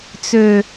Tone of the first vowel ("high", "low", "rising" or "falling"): low